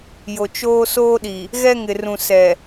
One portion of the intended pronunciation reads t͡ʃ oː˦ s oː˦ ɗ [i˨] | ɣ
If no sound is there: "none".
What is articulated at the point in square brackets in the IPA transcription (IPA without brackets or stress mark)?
i˨